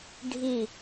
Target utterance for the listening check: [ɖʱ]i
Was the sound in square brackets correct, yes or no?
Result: yes